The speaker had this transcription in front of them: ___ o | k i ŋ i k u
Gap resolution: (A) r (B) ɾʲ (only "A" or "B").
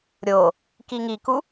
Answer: B